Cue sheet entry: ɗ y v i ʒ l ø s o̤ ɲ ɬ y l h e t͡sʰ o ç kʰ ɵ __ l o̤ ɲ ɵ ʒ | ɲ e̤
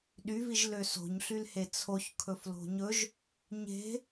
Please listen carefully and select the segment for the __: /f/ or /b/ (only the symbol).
f